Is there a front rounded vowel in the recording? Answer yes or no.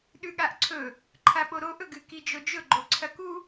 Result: no